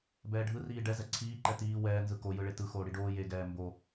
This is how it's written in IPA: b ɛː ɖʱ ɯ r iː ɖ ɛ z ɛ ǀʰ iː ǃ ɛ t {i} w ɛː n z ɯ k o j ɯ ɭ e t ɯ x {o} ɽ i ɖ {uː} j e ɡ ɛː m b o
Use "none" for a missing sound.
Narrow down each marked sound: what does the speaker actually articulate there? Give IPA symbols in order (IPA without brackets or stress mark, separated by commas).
iː, oː, oː